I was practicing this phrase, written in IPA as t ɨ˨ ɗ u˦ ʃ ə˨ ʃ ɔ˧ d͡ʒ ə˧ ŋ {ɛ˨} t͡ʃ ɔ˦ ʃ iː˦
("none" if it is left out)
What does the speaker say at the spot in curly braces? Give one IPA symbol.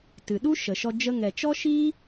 ɛ˨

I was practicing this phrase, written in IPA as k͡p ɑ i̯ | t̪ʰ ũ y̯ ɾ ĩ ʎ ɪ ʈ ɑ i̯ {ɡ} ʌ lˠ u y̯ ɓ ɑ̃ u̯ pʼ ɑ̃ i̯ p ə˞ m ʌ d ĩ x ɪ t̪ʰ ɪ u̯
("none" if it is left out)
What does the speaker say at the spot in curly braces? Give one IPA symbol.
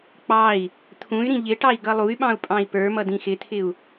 ɡ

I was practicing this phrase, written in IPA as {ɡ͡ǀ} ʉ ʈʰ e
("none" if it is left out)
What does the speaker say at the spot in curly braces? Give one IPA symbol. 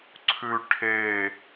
ǀʰ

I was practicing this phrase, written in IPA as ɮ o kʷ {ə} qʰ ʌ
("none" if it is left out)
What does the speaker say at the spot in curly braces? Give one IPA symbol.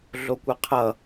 ə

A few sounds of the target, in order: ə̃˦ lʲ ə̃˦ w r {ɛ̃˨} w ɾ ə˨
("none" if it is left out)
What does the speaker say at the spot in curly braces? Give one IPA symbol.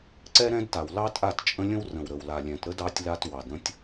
ə̃˨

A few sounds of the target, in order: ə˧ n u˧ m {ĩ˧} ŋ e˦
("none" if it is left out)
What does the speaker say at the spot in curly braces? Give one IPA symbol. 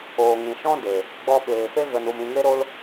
ĩ˧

